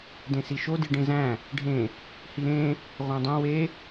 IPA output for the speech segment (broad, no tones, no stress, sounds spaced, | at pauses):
d ẽ s i ʃ o d i ɖ ẽ z æ̃ | ɖʱ ẽ | h i ɾ ẽ | ʁʷ æ̃ dˤ õ w e